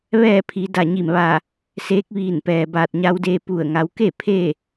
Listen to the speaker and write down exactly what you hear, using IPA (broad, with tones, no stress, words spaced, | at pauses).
ʋɛː˥˨pʰi˩˧ da˧˩ɲi˧˩mʋa˧˩ | seː˧˥k̚ʋiː˧˩npɛː˩ baː˧˩t̚ɲa˧wdeː˧ pu˧˩ə̯ ŋa˩˧wke˥˨ pʰe˥˨